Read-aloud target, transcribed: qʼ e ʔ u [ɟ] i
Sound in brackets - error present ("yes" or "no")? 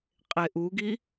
yes